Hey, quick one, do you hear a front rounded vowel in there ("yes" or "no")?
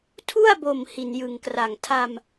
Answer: no